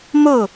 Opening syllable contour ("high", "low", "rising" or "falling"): falling